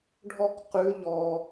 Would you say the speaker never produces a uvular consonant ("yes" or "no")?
no